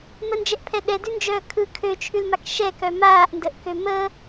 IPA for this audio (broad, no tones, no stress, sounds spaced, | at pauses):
m ə n d͡ʒ ɛ ʔ pʰ ɛ ɗ ɛ d ʉ n d͡ʒ œː kʰ ɯ kʰ ø t͡ʃʰ ʉ l m a k ʃ ɛ k œ m aː ʔ n d ə ʔ k ø m ə